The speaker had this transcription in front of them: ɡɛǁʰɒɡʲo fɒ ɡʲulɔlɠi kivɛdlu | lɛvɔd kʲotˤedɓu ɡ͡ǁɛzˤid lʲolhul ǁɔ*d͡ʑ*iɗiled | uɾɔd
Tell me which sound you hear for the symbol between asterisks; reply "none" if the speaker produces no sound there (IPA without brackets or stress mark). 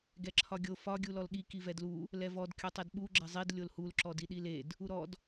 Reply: d